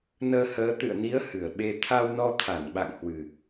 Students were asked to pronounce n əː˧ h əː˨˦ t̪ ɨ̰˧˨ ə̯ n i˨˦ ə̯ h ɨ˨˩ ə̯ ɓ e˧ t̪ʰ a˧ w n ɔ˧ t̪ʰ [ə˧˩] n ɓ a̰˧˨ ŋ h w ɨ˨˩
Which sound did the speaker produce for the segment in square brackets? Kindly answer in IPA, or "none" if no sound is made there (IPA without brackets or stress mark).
a˧˩